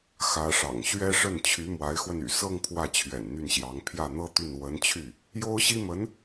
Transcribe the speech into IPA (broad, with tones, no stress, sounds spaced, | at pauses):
x ä˧˥ ʂ ɑ̰˨˩ ŋ ɕ ɥ ɛ˥ ʂ ə˥˩ n t͡ɕʰ y˧˥ m w a˧˥ ɪ̯ x w ə˧ n y̰˨˩ s ɤ˥˧ ŋ pʰ w ä˥˩ t͡ɕʰ ɥ ɛ̰˨˩ n n̪ y˥˩ n ɕ j ɑ˧˥ ŋ pʰ j ä˥˩ n̪ ɤ˥ t̪ y˥˩ n w ə˧˥ n t͡ɕʰ y˥˩ | j o˥ ʊ̯ ɕ i˥ m ə˧˥ n